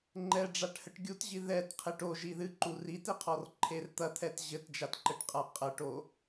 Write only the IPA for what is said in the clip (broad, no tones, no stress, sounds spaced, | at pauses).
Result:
ŋ͡ǃ ɛ ɖ͡ʐ a ʈ h ɘ ʈ ɡʲ u t ʑ i ð ɛ t qʰ e ʈ o ʒ i ð ɨ ǃ u r i t e qʰ ɔ r ǃʰ e r t̪ ɐ t̪ʰ ɛ t ʑ ɘ t d͡ʒ a t ǃ ɘ ʈ qʼ a qʼ ɐ ʈ o